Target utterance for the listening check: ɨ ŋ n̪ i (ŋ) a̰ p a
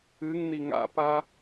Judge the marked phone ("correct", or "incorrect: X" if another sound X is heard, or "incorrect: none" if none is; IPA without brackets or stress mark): correct